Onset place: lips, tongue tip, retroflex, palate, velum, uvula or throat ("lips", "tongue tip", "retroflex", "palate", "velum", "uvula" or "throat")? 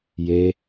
palate